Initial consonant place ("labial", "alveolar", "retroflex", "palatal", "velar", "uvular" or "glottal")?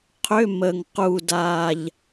uvular